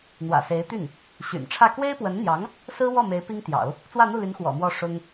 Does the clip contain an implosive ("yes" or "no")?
no